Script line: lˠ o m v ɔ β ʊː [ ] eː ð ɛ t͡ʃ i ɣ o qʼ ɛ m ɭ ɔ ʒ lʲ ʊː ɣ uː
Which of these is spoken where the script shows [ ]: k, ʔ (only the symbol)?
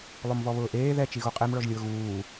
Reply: ʔ